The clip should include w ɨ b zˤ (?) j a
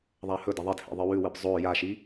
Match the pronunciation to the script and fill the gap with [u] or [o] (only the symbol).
o